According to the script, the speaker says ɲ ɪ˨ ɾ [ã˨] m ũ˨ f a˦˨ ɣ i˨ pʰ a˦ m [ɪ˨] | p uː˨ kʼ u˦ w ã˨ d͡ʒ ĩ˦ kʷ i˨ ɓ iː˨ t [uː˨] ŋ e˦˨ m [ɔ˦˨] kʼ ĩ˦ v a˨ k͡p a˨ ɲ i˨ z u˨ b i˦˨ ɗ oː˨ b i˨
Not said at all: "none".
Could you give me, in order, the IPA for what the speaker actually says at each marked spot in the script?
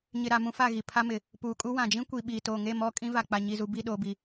a˨, ɪ˨, oː˨, ɔ˦˨

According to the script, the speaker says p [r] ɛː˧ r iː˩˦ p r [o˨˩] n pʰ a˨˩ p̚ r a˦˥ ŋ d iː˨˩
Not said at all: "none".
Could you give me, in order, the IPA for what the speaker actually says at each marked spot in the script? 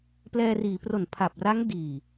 l, o˨˩

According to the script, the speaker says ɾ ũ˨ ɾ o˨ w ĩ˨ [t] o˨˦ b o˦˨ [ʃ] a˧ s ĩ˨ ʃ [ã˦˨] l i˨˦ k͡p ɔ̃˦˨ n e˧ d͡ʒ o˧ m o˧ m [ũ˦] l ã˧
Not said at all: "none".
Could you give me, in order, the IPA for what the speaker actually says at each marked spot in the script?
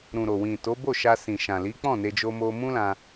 t, ʃ, ã˨, ũ˦

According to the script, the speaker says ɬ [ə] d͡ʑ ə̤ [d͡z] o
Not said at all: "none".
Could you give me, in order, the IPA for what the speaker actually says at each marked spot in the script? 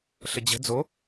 ə, d͡z

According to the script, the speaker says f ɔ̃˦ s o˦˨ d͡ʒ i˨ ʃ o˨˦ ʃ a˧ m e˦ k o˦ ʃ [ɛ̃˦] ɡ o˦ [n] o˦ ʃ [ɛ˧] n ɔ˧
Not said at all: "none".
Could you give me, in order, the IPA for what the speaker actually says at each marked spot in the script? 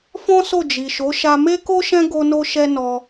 ɛ̃˦, n, ɛ˦

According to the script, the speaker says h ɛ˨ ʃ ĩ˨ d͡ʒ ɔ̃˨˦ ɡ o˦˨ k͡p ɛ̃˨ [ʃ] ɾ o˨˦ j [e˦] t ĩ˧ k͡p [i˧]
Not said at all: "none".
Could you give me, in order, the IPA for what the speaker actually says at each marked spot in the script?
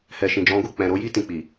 none, i˦, i˨

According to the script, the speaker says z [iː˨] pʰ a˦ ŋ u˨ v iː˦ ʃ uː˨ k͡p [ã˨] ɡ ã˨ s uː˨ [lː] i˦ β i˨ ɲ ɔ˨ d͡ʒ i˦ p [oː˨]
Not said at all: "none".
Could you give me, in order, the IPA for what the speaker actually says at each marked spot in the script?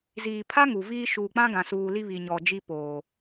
iː˨, ã˦, l, oː˨

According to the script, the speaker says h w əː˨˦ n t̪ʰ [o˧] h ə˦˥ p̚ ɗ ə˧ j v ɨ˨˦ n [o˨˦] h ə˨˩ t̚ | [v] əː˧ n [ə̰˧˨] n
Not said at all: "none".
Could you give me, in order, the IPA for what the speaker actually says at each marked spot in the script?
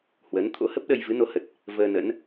o̰˧˥, o˨˦, v, ə̰˧˥

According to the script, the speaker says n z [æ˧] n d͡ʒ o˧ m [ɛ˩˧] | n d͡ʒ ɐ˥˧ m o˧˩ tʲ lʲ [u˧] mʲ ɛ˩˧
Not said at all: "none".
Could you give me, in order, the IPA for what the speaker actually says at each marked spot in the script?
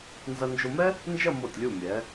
ɐ˧, ɛ˥, u˧˩

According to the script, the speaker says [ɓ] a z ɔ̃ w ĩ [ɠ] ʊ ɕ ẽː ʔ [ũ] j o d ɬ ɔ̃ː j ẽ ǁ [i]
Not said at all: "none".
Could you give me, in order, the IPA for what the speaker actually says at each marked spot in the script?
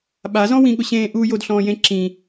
ɓ, ɠ, u, ĩ

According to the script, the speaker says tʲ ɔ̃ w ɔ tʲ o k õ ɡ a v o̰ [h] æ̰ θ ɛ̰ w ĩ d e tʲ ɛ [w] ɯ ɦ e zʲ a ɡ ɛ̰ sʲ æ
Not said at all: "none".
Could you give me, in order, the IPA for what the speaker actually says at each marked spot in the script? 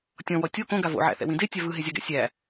ʕ, v

